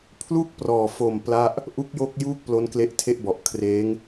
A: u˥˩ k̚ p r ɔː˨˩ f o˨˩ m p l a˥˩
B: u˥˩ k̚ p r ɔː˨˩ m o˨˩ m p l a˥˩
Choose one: A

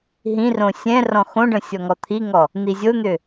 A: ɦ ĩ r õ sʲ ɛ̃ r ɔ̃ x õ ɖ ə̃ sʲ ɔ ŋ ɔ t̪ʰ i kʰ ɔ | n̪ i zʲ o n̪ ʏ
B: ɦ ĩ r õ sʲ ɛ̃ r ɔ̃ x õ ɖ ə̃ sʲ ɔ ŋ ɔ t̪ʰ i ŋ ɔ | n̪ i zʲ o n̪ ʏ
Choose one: B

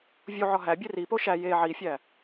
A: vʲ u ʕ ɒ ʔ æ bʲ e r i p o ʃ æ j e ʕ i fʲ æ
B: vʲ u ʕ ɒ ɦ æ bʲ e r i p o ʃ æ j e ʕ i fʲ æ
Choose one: B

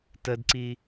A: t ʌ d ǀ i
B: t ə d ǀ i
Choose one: B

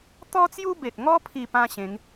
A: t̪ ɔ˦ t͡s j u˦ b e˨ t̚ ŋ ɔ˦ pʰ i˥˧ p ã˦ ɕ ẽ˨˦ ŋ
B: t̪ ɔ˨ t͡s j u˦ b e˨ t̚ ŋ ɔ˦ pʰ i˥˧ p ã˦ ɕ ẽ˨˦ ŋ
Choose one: A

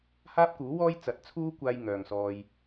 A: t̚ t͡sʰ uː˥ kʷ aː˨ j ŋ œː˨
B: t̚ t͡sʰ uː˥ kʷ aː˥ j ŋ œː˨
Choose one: B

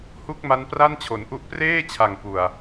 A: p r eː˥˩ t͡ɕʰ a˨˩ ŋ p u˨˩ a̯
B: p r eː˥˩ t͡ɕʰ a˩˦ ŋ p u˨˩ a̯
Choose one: A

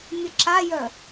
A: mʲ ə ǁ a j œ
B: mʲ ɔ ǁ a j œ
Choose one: A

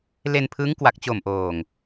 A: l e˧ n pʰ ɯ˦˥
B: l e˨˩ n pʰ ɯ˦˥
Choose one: A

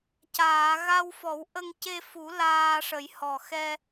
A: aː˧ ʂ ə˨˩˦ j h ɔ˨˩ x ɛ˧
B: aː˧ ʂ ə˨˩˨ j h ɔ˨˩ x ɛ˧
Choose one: A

